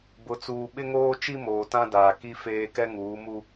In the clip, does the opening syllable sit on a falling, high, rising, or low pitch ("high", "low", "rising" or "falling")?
low